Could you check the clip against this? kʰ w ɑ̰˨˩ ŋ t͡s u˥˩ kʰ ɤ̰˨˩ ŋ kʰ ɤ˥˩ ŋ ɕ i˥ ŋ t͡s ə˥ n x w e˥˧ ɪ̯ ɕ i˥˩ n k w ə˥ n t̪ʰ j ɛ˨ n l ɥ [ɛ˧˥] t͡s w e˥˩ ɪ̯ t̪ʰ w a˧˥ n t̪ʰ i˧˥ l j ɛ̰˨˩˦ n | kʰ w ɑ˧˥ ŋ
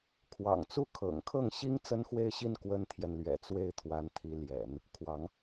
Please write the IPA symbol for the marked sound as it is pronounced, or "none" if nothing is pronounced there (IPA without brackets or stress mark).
ɛ̰˨˩